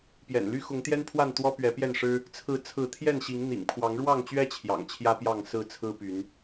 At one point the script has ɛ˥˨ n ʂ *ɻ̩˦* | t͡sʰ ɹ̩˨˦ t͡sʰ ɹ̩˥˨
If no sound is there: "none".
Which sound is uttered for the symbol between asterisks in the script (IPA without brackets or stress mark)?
ɻ̩˦